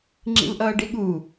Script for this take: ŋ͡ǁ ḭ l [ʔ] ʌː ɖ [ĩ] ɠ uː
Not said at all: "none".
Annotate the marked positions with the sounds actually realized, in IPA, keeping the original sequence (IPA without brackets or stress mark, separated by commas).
ʔ, i